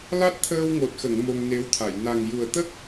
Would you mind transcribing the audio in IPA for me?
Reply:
l a˦˥ t̚ t̪ʰ əː˧ w ŋ o˨˩ t̚ x ə˨˩˨ ŋ m o˧ ŋ n e˧˥ w t̪ʰ a˨˩˨ j n a˨˩ ŋ j u˨˩ ə̯ t̪ ə˦˥ k̚

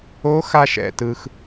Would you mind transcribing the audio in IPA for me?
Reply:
o˧˥ x a˧ ʃ ɛ̰˩ t ɯ˩ x

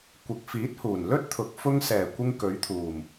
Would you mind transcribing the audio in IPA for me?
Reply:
kʷ ɪ˨ k̚ f iː˨˥ t̚ h uː˨˩ n l ɵ˥ t̚ t̪ʰ ʊ˨˥ k̚ f ʊ˧ ŋ s ɛː˨˩ kʷ ɪ˧ ŋ k ɵ˨˥ ɥ t̪ʰ uː˨˩ m

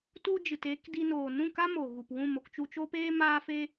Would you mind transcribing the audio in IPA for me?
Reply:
t u˧ d͡ʒ ɨ˨ t eː˧ k d i˧ n oː˨ n ũ˦˨ k a˦ m o˨ ɣ u˨ p w ũ˦˨ m o˨ k t͡ʃ u˨ t͡ʃ o˧ p eː˧ m aː˧ f e˧

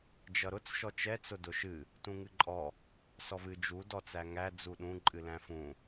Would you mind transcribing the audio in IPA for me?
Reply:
d͡ʒ ʌ ɾ ʊ t͡s ʃ ɔ t͡ʃ ɛ t͡s ʊ d ʊ ʃ ɨ | t ũ ŋ ɨ ǃʼ ɔ | s ɔ v ɨ d͡ʒ u d ɔ t͡s æ ŋ æ d͡z u ɗ ũ ǃʼ ɨ l æ̃ f ũ

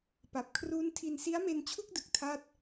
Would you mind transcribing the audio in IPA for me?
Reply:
p a˨˩ p̚ kʰ r uː˦˥ n tʰ i˧ n s i˦˥ a̯ m e˧ n t͡ɕʰ u˥˩ k̚ d ɯ˨˩ k̚ tʰ aː˥˩ t̚

